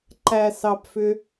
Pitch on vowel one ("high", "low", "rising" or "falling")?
low